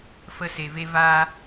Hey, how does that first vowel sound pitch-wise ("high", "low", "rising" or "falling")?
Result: high